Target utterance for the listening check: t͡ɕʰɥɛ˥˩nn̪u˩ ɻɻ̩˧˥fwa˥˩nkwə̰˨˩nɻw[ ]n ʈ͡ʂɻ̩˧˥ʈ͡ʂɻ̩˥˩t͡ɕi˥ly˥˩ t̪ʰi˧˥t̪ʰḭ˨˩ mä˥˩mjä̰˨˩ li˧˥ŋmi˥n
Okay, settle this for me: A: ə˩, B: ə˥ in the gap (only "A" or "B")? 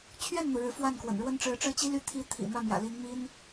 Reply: B